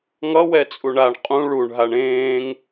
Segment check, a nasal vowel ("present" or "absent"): present